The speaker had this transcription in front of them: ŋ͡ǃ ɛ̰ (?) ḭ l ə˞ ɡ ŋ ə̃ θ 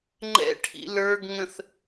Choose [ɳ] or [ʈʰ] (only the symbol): ʈʰ